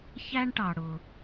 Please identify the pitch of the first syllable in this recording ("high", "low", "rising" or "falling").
high